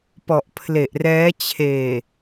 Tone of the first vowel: low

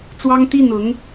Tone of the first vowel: high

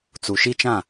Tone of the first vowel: low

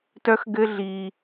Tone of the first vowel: high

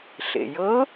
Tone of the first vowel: low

